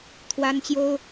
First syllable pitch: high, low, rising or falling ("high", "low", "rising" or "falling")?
high